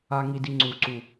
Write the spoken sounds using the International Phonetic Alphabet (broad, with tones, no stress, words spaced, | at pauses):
a˨ŋi˨di˨ ŋ͡ǀu˨ǀu˨